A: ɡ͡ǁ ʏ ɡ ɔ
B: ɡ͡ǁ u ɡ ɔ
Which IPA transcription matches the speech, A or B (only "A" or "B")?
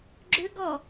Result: A